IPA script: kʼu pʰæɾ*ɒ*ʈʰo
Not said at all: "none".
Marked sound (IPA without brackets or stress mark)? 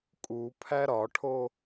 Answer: ɒ